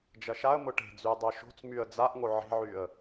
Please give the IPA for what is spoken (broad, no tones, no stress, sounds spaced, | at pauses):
d͡ʒ ɐ ʃ a ə̯ m ʊ ʈ e̤ d͡z y ə̯ dˤ œ ʃ o̤ t͡s m y ə̯ d͡z a ʔ ŋ o ʕ e̤ ʕ y ə̯